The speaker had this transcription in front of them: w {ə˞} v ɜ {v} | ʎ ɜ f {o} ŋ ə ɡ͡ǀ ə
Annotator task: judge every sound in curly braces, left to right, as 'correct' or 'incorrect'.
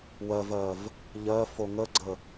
incorrect, correct, correct

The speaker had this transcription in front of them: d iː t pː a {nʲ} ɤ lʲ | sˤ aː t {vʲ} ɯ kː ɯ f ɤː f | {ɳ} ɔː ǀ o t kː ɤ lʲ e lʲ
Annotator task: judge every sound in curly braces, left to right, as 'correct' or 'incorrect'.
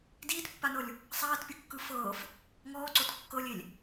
incorrect, incorrect, incorrect

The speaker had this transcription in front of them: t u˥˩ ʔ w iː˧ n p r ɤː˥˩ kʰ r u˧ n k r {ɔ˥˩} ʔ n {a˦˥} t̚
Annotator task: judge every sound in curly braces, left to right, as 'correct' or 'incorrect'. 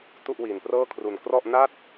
correct, incorrect

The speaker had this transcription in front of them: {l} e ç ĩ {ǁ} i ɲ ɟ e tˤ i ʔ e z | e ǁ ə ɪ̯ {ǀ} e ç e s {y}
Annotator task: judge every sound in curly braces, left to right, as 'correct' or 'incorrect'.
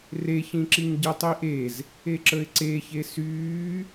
incorrect, correct, correct, incorrect

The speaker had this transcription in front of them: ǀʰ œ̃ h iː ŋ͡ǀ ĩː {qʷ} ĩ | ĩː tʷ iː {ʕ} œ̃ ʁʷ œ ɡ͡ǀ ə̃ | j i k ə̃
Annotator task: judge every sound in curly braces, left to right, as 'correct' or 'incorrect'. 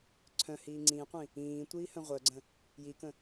correct, incorrect

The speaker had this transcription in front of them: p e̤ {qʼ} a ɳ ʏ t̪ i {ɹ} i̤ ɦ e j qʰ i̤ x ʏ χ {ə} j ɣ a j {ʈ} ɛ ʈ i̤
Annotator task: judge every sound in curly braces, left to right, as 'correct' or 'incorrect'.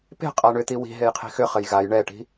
correct, incorrect, correct, incorrect

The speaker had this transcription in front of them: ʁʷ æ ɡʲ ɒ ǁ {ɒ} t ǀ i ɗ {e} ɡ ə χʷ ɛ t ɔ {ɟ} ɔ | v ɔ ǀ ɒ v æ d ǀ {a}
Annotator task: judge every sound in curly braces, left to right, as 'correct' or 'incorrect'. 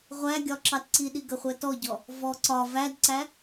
incorrect, incorrect, correct, incorrect

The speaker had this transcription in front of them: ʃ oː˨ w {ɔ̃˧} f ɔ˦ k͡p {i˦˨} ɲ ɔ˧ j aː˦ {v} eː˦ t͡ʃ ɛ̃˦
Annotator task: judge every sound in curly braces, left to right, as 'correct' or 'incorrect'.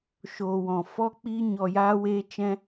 incorrect, incorrect, incorrect

